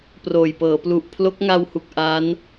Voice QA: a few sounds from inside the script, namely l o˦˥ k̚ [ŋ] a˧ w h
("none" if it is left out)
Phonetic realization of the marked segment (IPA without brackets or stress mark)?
ŋ